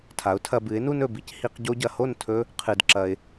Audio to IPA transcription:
tʰa˩˥ʊ̯tʰɐ˧bɨ˩˥ɪ̯nu˥n ɵ˩bi˩˥c hi˧q ɟo˧ɟɐ˩ho˥˩ntʰɵ˧ | qʰɨ˩dǁɐ˩ɪ̯

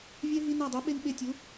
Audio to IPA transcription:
vʲɛ˦ ɦi˦ na˦˨dˤɛ˨˥ɓe˦n ɓe˦˨tʲu˨˥

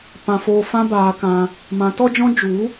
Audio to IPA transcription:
pã˧foː˧fã˦ baː˧kã˧ | mã˨˦tɔ˦d͡ʒɔ̃˦ d͡ʒu˨˦

